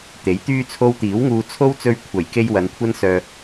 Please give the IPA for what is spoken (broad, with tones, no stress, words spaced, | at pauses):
t̪e˨˥jt̪yː˥t͡sʰo˥w t̪iː˨˥wŋuː˧t͡sʰo˥w t͡sɵ˧ɥkʷʰɐ˨˩jke˧j wɐ˨˧nkʷʰɐ˥nsœː˧